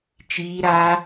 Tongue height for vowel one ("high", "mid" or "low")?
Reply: high